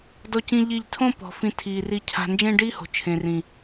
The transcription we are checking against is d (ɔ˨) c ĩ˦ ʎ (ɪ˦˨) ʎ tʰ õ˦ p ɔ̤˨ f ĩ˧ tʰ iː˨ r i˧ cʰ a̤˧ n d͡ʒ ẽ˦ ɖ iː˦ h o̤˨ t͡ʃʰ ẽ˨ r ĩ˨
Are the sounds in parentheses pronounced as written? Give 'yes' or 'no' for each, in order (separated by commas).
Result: no, no